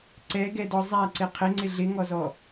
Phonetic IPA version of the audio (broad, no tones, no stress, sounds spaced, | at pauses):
ǀ ɛ ɡ ɛ d ɔ zˤ a ǀ ɪ qʰ ɪ ŋ͡ǀ ɪ ɮ ɪ ŋ ɔ z ɔ